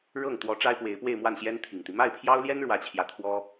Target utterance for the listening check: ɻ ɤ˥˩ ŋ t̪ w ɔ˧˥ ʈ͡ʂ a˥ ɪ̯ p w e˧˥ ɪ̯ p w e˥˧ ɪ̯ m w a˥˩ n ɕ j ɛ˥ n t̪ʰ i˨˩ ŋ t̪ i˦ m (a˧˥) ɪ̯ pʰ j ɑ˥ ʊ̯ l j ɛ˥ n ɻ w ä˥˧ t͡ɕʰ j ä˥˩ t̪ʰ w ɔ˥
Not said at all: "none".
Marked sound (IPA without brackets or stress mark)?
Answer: a˥˩